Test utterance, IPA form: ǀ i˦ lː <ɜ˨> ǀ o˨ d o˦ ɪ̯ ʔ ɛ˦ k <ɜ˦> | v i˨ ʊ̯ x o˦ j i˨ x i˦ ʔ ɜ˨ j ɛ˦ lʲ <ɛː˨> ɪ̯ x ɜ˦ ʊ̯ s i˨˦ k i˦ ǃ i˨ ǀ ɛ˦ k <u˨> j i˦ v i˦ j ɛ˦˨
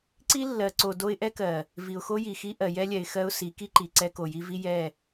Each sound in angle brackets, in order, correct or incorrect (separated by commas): correct, incorrect, incorrect, incorrect